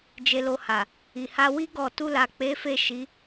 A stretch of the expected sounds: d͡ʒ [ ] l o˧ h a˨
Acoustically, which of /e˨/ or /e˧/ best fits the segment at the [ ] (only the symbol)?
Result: e˧